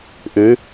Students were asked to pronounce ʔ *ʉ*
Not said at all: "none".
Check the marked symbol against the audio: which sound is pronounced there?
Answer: ʉ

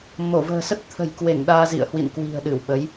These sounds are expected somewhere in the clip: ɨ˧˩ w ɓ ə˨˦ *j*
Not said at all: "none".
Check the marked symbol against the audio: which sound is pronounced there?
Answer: j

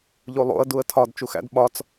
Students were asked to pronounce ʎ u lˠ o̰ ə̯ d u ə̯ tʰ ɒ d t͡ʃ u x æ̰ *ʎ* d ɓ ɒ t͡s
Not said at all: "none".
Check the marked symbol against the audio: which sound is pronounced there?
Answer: none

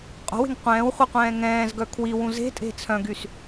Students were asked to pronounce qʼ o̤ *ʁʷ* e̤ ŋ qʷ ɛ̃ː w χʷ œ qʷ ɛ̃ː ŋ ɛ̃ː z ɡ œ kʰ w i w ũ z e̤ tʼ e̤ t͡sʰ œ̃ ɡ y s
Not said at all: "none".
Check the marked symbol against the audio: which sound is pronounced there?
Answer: w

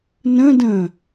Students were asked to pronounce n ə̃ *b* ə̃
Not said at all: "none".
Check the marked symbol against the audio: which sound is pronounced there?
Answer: d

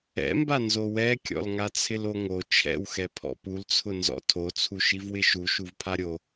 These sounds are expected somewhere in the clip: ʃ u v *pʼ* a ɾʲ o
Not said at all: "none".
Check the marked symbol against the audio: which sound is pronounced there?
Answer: pʰ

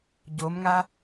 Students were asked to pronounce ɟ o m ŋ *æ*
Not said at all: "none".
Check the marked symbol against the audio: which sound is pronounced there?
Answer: a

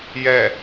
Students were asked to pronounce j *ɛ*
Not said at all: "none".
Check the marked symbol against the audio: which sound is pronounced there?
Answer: ɛ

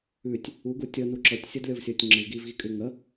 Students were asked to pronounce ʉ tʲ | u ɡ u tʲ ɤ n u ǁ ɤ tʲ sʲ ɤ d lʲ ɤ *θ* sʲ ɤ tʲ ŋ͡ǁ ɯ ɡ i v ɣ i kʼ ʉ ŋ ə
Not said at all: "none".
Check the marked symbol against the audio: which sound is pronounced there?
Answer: v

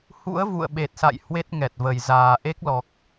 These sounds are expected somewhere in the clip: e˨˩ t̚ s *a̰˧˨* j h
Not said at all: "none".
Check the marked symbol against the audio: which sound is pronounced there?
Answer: a̰˧˨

